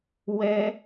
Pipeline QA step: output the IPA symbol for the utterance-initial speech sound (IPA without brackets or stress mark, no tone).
w